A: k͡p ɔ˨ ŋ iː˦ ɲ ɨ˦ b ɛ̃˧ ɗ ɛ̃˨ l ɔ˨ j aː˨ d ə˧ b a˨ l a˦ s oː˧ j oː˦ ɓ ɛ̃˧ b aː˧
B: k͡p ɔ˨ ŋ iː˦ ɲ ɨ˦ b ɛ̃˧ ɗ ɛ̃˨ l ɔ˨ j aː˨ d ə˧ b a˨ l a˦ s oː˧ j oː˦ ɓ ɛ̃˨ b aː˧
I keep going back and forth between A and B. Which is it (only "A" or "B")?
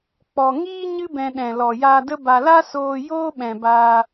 B